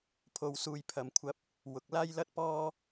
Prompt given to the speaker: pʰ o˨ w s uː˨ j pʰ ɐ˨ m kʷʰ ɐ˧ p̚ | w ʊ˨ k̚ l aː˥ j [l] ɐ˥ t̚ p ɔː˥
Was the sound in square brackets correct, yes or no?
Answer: yes